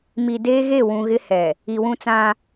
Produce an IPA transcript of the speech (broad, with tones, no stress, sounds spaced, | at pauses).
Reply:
m i˨ d eː˦ ɣ e˦˨ w ũ˨ ɣ ɪ˦ h ɛ˨ | i˨ w ũ˦ t͡s ã˦